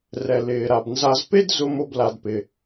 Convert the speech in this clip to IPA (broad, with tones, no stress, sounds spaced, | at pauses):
r ɛ˨ l ɪː˨ ɾ a˨ b n z a˦ z p e˥ d z ʊ˦ m o˦ b l a˨ d p ɪ˩